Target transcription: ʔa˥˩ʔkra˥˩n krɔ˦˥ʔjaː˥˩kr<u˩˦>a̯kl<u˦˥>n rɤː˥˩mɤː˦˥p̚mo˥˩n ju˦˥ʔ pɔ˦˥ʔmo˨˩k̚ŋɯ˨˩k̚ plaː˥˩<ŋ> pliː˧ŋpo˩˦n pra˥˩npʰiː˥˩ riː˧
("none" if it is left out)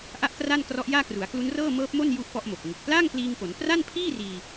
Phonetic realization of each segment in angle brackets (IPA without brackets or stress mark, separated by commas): u˩˦, u˦˥, ŋ